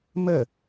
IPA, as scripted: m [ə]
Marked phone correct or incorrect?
correct